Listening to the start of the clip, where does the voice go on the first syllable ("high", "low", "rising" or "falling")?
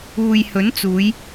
low